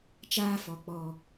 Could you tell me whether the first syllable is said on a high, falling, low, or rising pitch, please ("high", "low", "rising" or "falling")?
high